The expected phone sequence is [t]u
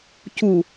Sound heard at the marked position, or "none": c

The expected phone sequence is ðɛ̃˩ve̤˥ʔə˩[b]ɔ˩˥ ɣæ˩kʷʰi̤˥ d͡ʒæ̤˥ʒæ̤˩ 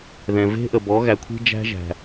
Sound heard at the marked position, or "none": b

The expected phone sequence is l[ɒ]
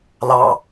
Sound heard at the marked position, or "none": ɑ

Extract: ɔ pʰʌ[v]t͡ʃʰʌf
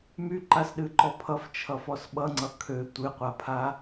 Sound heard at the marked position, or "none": f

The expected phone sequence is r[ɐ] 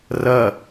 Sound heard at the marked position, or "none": ɐ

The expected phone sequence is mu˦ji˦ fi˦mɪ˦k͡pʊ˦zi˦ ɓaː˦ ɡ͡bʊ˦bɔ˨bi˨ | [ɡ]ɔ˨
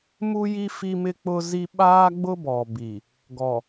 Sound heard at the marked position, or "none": ɡ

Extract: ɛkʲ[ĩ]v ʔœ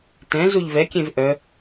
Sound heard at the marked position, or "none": ẽ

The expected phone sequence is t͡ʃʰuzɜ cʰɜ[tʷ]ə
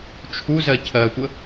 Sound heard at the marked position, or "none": tʷ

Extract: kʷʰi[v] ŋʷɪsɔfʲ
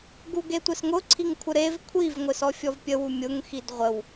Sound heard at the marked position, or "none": v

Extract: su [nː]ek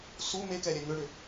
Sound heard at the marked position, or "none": m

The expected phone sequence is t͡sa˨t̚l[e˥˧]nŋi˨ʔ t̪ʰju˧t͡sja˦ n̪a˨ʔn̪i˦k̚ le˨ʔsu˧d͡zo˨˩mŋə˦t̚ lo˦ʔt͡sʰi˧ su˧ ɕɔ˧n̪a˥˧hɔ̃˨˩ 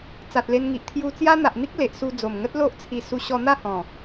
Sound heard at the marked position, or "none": e˧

